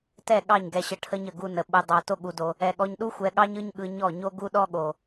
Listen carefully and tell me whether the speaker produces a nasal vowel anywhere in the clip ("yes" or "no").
no